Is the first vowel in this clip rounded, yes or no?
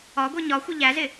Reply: yes